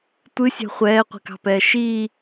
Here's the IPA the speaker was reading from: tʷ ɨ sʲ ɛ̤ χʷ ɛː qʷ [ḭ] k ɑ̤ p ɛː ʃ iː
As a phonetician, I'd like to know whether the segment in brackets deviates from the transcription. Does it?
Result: yes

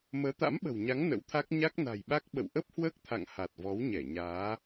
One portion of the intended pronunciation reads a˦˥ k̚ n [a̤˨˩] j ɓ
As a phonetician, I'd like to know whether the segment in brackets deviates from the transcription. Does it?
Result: no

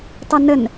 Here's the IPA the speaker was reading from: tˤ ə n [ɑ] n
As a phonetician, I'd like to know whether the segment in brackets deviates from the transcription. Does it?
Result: yes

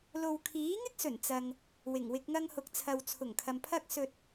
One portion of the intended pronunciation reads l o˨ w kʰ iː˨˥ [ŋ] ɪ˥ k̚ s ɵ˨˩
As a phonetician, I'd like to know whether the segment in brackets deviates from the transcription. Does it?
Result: no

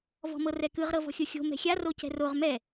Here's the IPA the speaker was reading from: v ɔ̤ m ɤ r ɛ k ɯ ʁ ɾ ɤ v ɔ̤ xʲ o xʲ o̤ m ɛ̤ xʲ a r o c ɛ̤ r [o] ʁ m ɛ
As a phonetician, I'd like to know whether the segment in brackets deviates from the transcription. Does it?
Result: no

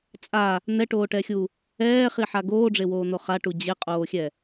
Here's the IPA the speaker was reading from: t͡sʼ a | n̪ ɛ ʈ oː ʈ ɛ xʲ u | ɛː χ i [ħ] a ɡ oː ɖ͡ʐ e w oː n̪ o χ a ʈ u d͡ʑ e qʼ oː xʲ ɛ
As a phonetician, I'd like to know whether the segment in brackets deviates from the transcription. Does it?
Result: no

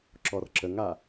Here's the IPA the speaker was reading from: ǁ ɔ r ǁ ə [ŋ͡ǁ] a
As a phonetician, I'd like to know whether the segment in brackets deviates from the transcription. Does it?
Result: yes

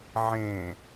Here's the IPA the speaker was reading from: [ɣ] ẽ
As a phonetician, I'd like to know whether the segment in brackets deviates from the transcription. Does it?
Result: yes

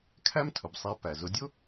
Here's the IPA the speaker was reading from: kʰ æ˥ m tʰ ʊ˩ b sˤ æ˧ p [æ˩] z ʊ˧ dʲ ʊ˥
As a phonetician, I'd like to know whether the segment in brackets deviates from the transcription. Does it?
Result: no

